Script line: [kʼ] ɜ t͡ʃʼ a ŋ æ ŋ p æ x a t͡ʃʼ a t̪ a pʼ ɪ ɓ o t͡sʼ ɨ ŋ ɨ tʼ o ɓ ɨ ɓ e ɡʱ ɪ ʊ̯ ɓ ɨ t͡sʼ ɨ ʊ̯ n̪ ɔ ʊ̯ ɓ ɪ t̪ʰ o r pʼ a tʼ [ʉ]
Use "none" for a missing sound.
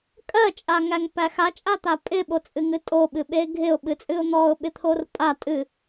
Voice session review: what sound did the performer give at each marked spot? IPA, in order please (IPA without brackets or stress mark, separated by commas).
kʼ, ɨ